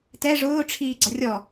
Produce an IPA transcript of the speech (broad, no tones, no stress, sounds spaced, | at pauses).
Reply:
t ɛ ʐ ʊː ʈ͡ʂʰ iː ɡ͡ǀ ʌ rʲ ɔ